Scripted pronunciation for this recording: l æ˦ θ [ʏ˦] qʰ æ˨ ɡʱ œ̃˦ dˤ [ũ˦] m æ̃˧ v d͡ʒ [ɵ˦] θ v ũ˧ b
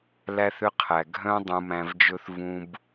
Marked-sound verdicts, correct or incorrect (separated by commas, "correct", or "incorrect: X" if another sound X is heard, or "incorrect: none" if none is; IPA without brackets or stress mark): correct, incorrect: ũ˧, correct